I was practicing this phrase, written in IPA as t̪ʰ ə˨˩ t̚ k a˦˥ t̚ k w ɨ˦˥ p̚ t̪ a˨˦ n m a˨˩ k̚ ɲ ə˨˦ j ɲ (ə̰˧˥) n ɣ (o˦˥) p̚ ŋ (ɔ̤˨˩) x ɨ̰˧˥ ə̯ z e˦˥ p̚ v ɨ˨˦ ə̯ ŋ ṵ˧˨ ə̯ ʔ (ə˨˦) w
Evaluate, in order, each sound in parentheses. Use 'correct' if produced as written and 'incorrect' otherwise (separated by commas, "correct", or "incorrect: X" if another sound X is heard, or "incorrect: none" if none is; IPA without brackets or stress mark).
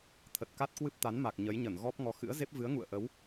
incorrect: ə˧˩, incorrect: ɔ˦˥, incorrect: ɔ˨˦, correct